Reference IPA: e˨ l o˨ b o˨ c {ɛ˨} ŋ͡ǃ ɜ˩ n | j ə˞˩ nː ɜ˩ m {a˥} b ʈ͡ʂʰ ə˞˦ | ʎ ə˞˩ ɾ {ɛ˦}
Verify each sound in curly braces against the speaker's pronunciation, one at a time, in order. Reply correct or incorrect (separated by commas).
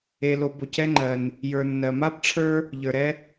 incorrect, correct, correct